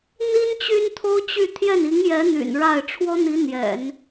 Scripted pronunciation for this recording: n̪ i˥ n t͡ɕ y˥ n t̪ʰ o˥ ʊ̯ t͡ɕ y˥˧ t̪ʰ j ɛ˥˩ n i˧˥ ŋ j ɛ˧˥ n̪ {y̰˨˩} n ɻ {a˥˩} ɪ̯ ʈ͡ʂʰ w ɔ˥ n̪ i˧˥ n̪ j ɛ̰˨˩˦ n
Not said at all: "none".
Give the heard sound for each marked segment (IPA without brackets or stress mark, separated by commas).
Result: y̰˨˩, a˥˩